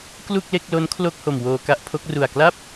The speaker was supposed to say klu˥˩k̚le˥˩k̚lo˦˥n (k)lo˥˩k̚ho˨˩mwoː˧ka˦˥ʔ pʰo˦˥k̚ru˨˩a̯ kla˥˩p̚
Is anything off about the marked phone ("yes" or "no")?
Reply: yes